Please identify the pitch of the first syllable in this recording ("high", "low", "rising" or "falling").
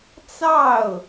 falling